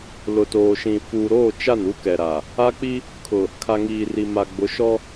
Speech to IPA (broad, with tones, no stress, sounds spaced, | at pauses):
l ʊ˨ t oː˨ ʃ ĩ˨ f uː˨ ɾ oː˦˨ t͡ʃ a˦˨ n u˦ k ɛ˨ ɾ a˨ | a˦ k͡p i˦ | kʰ ʊ˨ | kʰ a˨ ŋ iː˨ r i˨ m a˨ ɡ͡b ʊ˨˦ ʃ ɔ˦